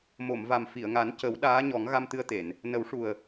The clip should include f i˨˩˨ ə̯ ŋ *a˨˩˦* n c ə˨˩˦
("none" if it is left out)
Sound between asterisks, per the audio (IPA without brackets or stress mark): a˨˩˦